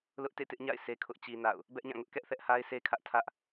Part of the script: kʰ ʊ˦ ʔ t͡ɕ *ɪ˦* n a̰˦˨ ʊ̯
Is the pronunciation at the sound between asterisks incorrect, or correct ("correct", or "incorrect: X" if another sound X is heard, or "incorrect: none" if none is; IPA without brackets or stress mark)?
incorrect: i˦